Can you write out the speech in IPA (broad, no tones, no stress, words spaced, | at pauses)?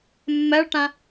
mːɜɭʈã